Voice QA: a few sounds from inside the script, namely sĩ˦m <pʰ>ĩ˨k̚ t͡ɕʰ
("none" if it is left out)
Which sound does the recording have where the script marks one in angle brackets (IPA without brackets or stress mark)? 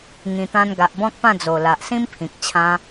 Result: pʰ